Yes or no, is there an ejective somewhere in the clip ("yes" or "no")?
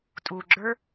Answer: yes